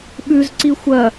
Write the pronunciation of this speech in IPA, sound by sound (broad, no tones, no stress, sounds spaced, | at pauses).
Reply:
ɓ ʉ z ǀ i xʷ ɐ